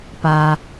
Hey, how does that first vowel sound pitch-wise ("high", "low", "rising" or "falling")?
low